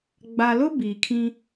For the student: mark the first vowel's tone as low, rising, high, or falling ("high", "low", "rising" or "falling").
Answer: low